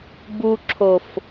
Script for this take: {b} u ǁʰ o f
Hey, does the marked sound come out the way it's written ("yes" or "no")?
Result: yes